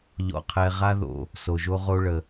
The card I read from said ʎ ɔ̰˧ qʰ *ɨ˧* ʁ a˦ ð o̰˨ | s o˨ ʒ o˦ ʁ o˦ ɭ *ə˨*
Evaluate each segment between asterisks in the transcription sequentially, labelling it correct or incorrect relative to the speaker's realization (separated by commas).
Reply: incorrect, correct